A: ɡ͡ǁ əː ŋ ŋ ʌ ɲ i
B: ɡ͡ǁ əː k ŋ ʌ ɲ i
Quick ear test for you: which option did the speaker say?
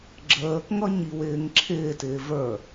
B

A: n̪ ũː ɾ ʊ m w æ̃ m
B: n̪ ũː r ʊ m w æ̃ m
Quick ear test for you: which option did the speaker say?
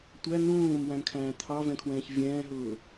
A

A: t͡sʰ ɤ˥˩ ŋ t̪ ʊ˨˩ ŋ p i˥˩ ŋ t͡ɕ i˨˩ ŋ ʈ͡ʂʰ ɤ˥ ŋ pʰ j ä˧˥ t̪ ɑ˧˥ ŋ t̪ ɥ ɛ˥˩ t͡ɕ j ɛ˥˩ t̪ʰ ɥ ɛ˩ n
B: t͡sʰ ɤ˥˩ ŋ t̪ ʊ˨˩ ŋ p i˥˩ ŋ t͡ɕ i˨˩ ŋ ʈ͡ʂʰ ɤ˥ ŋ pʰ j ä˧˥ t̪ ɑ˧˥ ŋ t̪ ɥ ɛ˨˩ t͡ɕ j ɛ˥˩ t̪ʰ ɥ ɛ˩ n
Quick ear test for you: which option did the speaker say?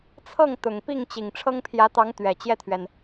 B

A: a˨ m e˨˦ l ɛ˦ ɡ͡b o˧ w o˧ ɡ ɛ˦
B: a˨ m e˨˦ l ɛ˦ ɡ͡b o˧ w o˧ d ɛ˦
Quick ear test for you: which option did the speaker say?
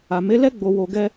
A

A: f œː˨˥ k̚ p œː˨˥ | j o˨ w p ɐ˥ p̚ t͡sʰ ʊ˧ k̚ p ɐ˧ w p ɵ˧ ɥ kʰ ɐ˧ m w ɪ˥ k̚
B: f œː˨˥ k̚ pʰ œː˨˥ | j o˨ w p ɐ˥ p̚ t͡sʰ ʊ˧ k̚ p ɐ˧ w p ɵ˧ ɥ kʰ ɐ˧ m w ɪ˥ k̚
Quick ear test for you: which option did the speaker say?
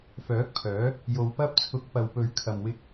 B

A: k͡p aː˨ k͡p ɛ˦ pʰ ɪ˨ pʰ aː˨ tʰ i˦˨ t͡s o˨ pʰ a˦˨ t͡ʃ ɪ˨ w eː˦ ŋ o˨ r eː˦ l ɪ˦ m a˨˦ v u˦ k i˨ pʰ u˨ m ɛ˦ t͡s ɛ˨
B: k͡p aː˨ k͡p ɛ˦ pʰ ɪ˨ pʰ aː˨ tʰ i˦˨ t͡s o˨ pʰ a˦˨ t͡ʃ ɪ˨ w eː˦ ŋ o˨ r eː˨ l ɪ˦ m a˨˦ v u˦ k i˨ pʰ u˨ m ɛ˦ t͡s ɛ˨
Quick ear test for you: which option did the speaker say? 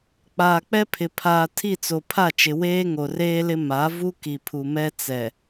A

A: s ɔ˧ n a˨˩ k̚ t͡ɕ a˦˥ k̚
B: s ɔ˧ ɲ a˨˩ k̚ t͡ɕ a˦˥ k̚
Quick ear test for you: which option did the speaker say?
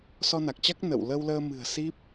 A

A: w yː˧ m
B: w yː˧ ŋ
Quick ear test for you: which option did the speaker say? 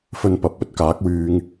B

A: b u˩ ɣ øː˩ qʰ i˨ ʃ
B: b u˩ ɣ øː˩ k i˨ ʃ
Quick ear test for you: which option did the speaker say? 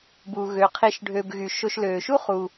A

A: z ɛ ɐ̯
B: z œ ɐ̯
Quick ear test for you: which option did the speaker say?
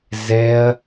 A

